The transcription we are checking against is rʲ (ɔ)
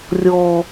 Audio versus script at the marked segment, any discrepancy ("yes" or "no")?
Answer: no